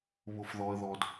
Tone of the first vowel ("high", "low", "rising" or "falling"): low